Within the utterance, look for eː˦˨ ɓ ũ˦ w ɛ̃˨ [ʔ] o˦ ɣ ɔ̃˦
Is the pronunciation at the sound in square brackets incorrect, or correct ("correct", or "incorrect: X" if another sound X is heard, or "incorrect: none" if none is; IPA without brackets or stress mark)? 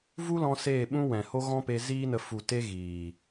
incorrect: h